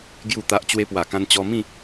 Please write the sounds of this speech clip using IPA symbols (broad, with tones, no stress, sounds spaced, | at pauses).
ɡ j u˥˧ t̪ a˦ ʔ t͡ɕ w e˧ p w a˨˩ k ã˧ n t͡ɕ ɔ˧ m ĩ˥˧